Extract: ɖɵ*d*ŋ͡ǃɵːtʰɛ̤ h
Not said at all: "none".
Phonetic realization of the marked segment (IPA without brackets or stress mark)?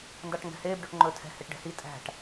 ʈ